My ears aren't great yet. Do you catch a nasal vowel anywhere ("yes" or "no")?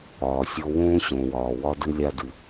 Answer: yes